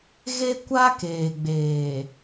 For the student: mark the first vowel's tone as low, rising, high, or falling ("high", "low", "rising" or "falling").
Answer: high